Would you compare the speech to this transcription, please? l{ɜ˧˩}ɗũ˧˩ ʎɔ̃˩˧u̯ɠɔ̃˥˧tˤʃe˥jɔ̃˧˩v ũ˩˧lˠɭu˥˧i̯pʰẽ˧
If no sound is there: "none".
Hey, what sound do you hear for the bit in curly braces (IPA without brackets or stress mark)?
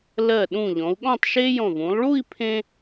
ɜ˧˩